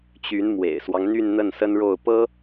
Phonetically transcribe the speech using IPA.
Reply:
t͡ɕ y˧˥ n m w ḛ˨˩ ɪ̯ s w ɑ˦ ŋ n̪ y˥˧ n n̪ ə˥˩ n s ə˥ n ɻ o˥˩ ʊ̯ p ɤ˥

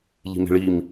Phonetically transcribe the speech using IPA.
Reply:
ʎ i̤ m e̤ ɭ i m

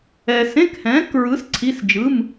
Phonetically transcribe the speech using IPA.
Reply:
ɛː˧ s ẽ˧˥˧ k h ɛ̃ː˨˥ k ɹ ɯ˨˥ s ǀʰ i˧˥˧ s d͡ʒ ɯ˧˥˧ m

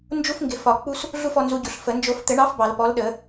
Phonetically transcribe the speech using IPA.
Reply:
n d͡ʒ u˦ f ŋ ɡ ɪ˨ f ɒ˨˩˦ k͡p u˦ s | ɮ u˦˨ f ɔ˨ n z u˨ ɟ u˨ ɬ f ə˨˩˦ n d͡ʒ o˨˩˦ f t̪ ɘ˨˩˦ ɳ ɑ˨˥ f b ɑ˨˩˦ l p ɔ˨˥ l ɗ ə˨˩˦

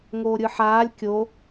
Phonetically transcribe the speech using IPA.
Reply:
ŋ oː ɾʲ ɯ ħ aː lʲ kʲ o

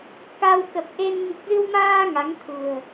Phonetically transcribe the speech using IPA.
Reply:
k a˧ w k ə˨˩ p̚ ʔ e˧ n ŋ i˨˩ k̚ z ɨ˧ w m aː˧ ŋ a˨˦ ŋ t̪ʰ ṳ˨˩ ə̯

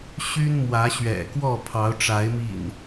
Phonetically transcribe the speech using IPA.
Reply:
ɕ y˦ n m w ä˨˦ ɕ ɥ ɛ̰˨˩ k w ɔ˥˨ pʰ ɑ˨˦ ʊ̯ ʈ͡ʂ a˨˦ ɪ̯ m ḭ˨˩ n

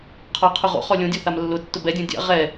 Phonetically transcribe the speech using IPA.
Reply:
qʰ ɔ qʰ ʊ ʁ o̰ χ ɔ lʲ õ dʲ o θ a m lː ʊ tː ʊ b ɛ dʲ õ dʲ a̰ ʁ ɛ

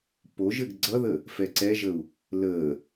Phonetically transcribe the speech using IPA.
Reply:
p o ʒ ɘ ɡ ɡ͡ǀ ʌ ð ə | f ɛ ǀ ɛ ʒ ə u̯ | l ə

